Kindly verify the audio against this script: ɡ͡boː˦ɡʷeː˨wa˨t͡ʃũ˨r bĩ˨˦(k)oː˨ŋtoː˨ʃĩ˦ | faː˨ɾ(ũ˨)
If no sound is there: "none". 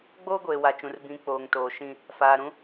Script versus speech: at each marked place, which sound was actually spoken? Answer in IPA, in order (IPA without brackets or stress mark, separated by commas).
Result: k͡p, ũ˦